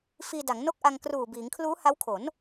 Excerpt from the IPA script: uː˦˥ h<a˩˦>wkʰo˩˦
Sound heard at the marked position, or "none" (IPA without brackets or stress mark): a˦˥